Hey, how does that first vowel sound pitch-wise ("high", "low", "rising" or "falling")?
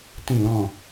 falling